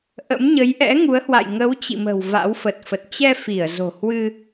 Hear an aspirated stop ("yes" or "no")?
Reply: no